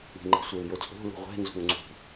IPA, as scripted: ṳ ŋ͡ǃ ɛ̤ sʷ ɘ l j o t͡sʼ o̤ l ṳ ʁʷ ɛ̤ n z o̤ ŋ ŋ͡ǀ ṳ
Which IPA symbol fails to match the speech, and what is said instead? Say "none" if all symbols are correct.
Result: none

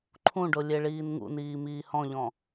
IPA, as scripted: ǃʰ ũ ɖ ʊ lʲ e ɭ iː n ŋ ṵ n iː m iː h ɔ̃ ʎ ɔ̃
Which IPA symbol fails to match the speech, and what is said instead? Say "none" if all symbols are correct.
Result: none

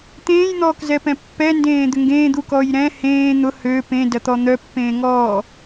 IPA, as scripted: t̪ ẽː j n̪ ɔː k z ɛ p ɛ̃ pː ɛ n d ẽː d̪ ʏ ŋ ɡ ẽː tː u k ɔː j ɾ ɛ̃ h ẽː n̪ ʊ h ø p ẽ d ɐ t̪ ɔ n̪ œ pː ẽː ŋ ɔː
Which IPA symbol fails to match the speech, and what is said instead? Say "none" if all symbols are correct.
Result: tː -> d̪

